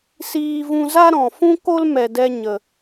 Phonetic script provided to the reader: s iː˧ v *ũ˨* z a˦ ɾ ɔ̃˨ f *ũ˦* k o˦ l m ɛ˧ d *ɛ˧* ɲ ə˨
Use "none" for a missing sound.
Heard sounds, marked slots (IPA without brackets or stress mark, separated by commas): ũ˧, ũ˦, ɛ˧